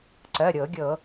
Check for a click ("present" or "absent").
present